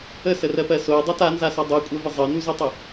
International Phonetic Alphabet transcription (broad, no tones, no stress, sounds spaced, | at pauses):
ə s ə r ɜ p ɜ s o ə̯ dˤ a t a n z a s ɔ dˤ ɜ kʷʼ ɜ v ə zˤ ɜ n u z o tˤ ə